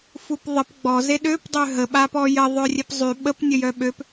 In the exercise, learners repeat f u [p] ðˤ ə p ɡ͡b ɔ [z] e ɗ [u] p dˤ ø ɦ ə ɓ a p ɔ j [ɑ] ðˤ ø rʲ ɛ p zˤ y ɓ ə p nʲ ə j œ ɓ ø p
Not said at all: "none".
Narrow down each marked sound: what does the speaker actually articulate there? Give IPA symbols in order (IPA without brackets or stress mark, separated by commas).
p, z, ø, ə